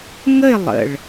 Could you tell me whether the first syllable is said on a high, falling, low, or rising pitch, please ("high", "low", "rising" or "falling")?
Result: falling